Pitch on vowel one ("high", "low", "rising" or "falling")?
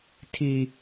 low